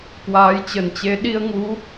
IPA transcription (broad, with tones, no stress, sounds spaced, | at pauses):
k w aː˨˦ j t͡ɕ ə˨˩ n t͡ɕ e˨˦ ɗ i˧ ə̯ ŋ u˨˦